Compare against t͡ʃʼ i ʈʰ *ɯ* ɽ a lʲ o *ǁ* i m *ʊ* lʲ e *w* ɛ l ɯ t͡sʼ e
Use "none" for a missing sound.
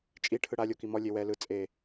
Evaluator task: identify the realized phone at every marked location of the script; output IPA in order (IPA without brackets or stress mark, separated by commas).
ɯ, k, ɔ, w